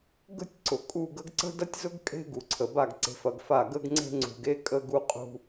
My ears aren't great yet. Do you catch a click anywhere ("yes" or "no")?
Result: yes